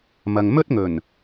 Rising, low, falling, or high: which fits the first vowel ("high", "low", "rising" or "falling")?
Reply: low